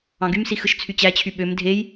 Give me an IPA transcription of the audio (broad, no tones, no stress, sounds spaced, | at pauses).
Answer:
ɑ̃ ɡ y m s i x ɯ ʃ t͡sʰ y t͡ɕ æ t͡ɕʰ y ɓ ø m dʱ e j